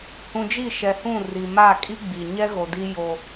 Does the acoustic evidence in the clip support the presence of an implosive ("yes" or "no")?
no